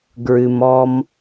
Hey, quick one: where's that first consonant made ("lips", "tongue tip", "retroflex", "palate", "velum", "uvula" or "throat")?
velum